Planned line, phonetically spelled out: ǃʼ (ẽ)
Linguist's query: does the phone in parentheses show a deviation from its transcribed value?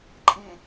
no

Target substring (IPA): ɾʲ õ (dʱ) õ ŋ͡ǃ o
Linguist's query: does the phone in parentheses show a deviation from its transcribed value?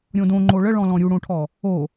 yes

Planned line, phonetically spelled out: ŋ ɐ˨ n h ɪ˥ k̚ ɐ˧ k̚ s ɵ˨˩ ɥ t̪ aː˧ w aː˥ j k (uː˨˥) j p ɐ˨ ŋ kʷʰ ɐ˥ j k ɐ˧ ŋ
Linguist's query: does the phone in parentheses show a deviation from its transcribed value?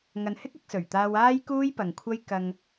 yes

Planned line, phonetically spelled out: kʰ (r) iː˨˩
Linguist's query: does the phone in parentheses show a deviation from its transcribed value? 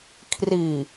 no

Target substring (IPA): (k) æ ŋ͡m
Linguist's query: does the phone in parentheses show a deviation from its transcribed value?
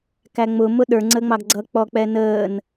no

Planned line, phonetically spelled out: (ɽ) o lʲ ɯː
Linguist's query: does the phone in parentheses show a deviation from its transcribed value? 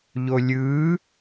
yes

